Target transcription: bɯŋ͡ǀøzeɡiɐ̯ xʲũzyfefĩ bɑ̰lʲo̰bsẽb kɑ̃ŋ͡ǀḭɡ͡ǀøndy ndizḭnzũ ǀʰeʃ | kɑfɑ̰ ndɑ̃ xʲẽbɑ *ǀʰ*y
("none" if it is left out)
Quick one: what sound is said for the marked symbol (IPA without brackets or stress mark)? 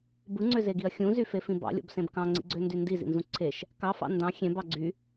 ɡ͡ǀ